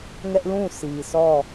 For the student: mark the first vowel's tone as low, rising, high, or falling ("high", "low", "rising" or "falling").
high